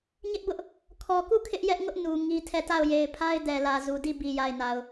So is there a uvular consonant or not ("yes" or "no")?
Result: no